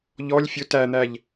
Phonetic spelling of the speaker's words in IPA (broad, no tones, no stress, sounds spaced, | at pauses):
ʎ ɔ lʲ fʲ ʊ t æ n̪ æ ʎ